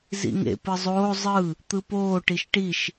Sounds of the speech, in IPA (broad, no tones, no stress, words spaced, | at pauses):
zḭŋḛ pɯzˤoː zˤɯ | t̪ɯpoː ʈiʃʈiʃ